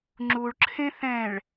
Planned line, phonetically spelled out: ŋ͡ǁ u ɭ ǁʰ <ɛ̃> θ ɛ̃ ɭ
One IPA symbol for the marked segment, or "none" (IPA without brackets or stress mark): ẽ